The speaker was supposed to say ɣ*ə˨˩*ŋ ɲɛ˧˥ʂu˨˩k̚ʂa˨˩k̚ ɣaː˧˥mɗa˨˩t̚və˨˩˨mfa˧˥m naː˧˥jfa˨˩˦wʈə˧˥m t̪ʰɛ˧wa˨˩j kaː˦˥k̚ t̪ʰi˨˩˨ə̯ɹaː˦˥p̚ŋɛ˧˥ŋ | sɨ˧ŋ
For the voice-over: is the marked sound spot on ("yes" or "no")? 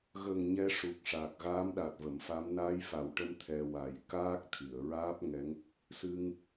yes